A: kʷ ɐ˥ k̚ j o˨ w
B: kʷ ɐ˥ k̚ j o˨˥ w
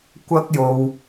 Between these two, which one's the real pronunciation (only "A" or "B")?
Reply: A